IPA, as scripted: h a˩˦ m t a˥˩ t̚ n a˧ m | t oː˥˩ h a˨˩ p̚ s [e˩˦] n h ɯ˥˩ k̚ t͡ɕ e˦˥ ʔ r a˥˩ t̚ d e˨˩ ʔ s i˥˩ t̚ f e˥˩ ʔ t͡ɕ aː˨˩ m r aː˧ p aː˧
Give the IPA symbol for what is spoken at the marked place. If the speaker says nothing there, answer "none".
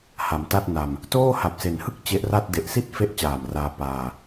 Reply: e˩˦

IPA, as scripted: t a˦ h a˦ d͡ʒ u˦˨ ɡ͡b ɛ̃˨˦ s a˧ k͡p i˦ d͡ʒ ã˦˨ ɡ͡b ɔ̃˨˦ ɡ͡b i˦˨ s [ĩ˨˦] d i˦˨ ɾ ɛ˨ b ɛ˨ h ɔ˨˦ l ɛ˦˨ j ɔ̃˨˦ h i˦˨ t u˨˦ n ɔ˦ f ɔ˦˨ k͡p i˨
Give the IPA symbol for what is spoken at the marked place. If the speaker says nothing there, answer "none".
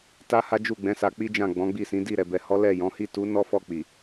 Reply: ĩ˨˦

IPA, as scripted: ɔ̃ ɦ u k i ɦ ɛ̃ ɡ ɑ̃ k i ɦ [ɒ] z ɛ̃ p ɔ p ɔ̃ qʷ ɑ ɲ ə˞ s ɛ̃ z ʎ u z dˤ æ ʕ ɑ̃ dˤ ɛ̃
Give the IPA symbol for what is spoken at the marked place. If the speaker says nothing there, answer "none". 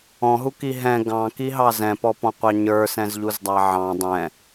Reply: ɑ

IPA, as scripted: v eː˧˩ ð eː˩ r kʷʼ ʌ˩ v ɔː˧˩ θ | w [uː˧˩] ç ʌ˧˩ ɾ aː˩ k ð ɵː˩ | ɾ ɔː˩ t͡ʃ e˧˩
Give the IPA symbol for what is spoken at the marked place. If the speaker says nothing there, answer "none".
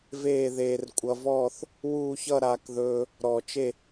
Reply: uː˧˩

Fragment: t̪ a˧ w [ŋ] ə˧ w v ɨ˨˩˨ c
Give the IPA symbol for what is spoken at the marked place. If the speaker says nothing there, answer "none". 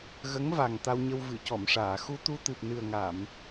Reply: ɲ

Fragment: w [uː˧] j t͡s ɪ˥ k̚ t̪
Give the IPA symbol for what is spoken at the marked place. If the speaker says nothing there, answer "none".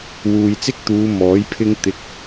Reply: uː˨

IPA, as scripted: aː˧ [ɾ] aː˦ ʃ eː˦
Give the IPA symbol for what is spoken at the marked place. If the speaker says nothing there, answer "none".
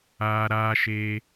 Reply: ɾ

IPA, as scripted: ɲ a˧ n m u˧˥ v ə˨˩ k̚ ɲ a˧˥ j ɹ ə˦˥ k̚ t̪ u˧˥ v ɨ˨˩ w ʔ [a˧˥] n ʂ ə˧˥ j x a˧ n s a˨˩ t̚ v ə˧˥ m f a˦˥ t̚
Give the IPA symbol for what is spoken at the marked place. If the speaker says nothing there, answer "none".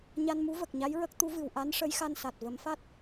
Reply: a˧˥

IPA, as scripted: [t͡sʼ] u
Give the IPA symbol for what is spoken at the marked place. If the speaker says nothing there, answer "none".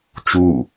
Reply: t͡ʃ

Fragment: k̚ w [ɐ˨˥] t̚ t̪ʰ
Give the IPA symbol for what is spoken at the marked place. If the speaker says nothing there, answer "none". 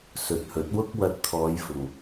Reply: ɐ˧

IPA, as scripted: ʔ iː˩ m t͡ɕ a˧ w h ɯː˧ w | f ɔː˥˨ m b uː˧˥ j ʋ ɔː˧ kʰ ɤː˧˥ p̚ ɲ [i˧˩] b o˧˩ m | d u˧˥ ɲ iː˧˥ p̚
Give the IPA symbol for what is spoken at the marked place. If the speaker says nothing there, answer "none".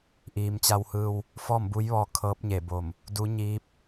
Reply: e˧˩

